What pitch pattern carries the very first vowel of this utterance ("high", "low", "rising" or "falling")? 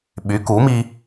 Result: rising